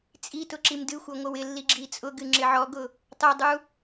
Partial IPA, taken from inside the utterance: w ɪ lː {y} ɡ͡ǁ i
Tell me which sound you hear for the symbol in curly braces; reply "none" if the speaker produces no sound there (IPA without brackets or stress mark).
i